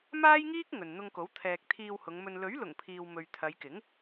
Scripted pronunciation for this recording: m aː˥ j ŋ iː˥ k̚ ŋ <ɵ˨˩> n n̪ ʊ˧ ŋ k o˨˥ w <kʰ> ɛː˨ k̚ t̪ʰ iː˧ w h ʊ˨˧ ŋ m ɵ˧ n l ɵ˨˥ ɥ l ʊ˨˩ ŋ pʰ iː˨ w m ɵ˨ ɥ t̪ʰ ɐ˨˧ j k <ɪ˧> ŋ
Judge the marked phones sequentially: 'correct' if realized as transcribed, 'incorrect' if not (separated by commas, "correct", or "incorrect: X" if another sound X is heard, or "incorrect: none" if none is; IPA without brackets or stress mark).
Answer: incorrect: ɵ˨, incorrect: t̪ʰ, incorrect: ɪ˨˥